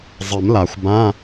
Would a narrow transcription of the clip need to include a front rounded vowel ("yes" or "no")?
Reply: no